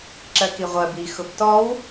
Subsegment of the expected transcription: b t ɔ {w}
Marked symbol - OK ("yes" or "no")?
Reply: yes